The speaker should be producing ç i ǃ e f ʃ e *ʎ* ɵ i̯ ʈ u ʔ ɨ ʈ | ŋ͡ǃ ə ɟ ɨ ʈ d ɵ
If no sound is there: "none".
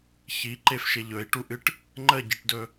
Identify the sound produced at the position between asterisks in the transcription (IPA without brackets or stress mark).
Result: ʎ